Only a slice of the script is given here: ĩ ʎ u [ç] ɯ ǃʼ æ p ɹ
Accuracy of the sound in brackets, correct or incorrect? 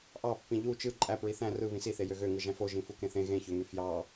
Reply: incorrect